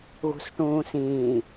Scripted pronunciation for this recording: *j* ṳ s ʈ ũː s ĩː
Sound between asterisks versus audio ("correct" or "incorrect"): incorrect